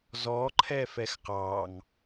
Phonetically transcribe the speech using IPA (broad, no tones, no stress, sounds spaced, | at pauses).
z ɔ ǃʰ ɛ f ɛ x q ɑ ŋ